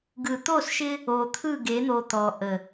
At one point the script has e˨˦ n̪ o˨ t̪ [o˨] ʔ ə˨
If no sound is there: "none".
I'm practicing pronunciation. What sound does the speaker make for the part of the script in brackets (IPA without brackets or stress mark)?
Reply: ɔ˨